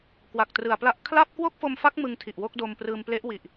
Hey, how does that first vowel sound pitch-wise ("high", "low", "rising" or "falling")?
low